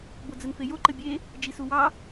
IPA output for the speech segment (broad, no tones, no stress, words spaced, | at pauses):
bod͡zənfejo ǃəbʲe | d͡ʒisuwɑ